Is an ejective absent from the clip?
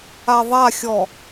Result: yes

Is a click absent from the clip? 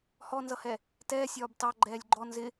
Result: no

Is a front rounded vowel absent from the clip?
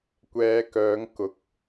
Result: no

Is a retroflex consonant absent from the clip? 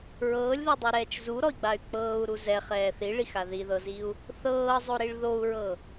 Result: no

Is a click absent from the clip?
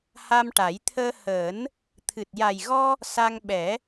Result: yes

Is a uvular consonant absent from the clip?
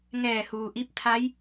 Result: yes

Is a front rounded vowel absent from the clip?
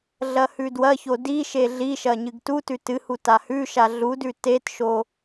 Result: yes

